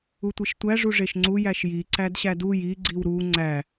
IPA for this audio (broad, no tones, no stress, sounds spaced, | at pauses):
u tʷ i ʃ tʷ æ ʐ u ʐ e ʃ ŋ͡ǀ u j æ ʃ j i ǀ æ d ɕ æ d u j i ɡ͡ǀ i w ɾ u ŋ͡ǀ æ